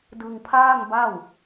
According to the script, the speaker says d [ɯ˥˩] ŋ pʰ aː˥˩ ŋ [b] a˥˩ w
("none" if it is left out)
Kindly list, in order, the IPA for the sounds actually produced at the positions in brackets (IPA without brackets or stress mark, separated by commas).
ɯ˧, b